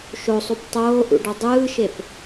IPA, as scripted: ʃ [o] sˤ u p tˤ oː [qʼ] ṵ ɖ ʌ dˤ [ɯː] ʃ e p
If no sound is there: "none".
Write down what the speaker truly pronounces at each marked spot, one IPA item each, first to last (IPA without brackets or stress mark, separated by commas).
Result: o, ʔ, ɯː